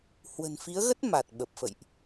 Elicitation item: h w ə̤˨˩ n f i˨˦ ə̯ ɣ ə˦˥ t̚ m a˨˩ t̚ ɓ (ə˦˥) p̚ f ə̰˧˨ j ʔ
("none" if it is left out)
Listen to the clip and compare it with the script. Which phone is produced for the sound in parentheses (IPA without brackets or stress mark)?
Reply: ə˨˩